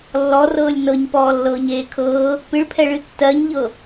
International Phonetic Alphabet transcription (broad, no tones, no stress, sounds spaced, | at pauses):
lː ɔ r ɤː lʲ n ɤ ɲ p ɔː lː ɤː ɲ eː kʰ ɤː | p ɨ ɭ pʰ ɛ ɭ ɨ tː ɜ ɲ ʎ ɤ